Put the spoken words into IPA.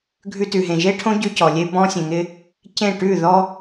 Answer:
ɡʱ ʉ˧ t ʉ˨ ɦ ẽ˨ ʒ e˦ ʈʰ õ˦ ɟ ʉ˧ c ɔ˨ lʲ e˧ b ɔ̃˧ sʲ ẽ˨ ŋ ɪ˧ | c ẽ˦˨ ʈ ʉ˦˨ ð ɔ˦

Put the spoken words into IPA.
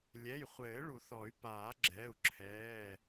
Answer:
lʲ ɛ˩˧˩ j χʷ ɘː˨˩˦ ɭ u˨˩˦ θ ɔ˨˩˦ y̯ p aː˨˩˦ ɡ͡ǁ ɛ˩˧˩ u̯ ǁʰ ɛː˩˧˩

